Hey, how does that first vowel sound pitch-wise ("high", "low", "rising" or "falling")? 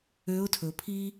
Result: rising